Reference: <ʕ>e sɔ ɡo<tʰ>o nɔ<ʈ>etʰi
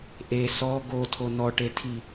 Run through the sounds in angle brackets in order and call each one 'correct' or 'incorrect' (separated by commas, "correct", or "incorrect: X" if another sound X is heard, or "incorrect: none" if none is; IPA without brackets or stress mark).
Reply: incorrect: ʔ, correct, correct